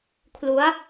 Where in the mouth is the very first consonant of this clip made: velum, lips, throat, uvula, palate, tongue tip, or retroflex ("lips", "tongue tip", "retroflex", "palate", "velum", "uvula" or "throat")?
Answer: velum